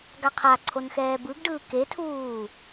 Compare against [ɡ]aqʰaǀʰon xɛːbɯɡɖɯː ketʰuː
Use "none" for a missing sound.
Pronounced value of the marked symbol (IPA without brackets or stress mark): ɡ